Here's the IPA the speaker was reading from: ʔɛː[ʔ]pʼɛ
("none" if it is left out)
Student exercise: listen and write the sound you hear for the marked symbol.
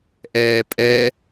none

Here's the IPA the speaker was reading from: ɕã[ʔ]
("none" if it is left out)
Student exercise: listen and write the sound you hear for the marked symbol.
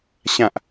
ʔ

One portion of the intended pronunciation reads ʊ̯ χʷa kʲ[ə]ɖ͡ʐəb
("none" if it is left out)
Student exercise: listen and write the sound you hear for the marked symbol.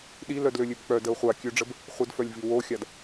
ø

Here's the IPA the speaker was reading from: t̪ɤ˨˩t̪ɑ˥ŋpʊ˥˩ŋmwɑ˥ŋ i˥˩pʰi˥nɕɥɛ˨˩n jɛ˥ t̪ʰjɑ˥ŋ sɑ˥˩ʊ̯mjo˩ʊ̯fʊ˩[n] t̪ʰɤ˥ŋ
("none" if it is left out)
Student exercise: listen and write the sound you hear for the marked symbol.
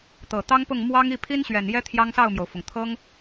ŋ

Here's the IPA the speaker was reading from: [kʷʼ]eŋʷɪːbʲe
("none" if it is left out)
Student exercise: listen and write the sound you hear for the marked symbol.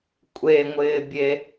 kʷʼ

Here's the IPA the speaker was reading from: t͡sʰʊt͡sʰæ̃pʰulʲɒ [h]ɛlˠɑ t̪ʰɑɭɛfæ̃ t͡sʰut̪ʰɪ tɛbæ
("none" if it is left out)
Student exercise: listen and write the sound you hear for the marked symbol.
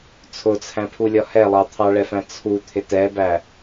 h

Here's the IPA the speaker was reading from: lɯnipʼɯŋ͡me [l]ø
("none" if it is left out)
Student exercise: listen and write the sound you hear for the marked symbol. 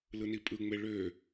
ɭ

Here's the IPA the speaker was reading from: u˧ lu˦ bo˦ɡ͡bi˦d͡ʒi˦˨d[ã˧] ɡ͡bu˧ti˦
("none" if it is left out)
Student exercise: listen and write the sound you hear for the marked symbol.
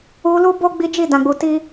ã˧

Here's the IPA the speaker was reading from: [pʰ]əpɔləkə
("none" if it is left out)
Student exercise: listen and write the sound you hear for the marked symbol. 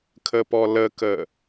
kʰ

